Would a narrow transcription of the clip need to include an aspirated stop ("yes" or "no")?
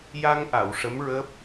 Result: no